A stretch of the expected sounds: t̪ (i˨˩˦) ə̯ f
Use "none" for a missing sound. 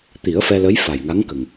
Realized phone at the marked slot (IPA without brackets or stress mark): i˨˩˦